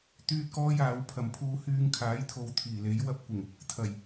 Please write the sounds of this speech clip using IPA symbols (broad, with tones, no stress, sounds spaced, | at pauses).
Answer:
t̪ yː˥ t̚ k ɔː˥ j aː˨˥ w pʰ ɐ˨ m pʰ uː˧ h yː˧ ŋ kʰ aː˨˥ j t̪ʰ o˨˧ w t̪ʰ iː˨˩ l e˨˥ j w ɐ˧ p̚ kʷ ɪ˨˩ ŋ | t̪ʰ ɐ˨˩ j